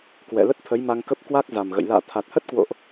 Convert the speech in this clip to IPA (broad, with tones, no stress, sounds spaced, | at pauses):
k w ɛ̰˧˨ l ə˦˥ t̚ t̪ʰ ə˨˦ j m a˧ ŋ k ə˦˥ p̚ k w a˦˥ k̚ z a˨˩ m ɣ ə̰˧˨ j l a̰ː˧˨ t̪ʰ a˨˩ t̚ h ə˦˥ t̚ k w o̰˧˨ ʔ